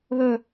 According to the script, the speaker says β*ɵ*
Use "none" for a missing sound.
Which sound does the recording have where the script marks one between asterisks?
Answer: ɵ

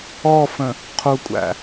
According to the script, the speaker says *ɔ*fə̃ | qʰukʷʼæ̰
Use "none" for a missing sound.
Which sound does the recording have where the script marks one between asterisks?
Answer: ɔ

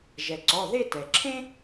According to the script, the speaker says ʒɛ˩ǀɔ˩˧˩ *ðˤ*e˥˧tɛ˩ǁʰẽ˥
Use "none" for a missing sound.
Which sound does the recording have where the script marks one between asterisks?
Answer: ð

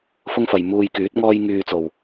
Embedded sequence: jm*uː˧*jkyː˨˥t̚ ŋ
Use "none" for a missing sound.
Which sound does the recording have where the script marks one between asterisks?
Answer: uː˧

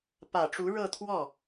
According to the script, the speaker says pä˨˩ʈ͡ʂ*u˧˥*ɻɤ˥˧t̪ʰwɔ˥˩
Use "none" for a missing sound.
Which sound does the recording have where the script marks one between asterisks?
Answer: u˧˥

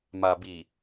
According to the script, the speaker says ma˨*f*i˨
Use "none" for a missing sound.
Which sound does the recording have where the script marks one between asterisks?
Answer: b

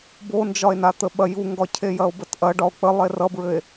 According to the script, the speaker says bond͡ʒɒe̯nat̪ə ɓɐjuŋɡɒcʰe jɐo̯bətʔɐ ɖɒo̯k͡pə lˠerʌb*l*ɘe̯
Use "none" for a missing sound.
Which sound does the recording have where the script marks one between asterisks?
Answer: ɹ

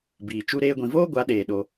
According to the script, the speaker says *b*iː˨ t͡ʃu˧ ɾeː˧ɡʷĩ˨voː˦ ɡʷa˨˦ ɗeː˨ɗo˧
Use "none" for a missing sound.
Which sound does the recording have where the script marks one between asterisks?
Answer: b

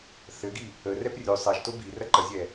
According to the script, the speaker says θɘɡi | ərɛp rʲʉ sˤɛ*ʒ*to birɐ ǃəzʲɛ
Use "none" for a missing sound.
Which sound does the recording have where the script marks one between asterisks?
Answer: ʒ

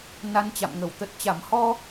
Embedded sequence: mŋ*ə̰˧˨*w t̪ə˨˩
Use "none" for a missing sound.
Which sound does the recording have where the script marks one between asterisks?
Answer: ə˧˩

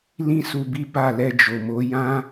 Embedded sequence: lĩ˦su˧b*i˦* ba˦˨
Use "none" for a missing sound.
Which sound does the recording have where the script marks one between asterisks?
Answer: i˦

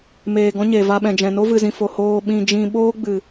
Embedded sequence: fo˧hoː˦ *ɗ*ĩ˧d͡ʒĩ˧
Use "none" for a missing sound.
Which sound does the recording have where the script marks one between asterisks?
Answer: ɓ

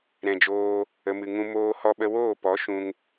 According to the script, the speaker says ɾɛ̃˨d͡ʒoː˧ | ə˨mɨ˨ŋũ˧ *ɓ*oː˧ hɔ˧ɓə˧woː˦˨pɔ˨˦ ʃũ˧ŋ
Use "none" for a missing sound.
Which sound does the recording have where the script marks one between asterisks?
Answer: m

